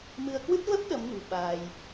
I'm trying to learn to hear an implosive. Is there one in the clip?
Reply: yes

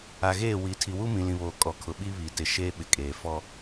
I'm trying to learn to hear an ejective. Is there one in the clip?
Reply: yes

